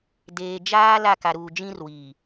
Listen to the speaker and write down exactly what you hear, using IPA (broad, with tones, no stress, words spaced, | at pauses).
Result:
deː˨ d͡ʒaː˦ la˦˨ka˨ɾuː˨ d͡ʒĩ˦r wiː˨